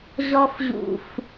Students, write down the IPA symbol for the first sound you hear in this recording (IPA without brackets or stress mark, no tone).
ʑ